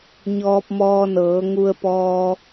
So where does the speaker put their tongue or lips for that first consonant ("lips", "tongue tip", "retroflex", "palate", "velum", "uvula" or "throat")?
palate